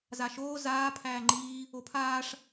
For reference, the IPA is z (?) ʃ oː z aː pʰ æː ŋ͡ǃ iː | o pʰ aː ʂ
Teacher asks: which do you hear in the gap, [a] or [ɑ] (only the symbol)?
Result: a